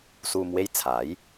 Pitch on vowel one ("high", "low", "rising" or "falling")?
low